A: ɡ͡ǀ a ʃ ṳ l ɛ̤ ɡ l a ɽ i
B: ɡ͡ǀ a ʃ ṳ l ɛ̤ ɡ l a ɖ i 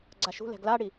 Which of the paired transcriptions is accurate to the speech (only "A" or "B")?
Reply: A